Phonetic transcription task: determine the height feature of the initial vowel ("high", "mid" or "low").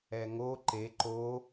mid